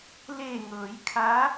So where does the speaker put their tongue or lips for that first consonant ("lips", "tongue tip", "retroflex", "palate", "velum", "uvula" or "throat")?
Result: tongue tip